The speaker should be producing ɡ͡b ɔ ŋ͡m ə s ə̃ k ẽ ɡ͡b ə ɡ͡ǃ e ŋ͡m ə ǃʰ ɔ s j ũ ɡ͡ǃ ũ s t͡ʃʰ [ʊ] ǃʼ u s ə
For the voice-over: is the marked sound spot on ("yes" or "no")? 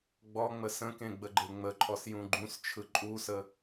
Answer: no